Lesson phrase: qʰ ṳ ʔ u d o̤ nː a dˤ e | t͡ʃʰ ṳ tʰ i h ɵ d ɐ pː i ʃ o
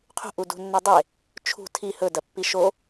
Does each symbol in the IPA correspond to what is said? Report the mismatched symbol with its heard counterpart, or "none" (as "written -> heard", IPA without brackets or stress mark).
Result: o̤ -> ṳ